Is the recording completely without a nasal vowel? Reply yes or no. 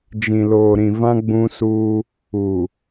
no